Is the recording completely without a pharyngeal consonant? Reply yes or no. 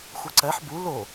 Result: no